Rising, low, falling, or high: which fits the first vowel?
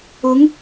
rising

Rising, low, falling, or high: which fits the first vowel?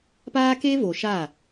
high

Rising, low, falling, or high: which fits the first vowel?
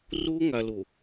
high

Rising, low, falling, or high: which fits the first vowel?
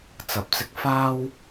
low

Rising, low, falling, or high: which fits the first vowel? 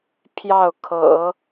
falling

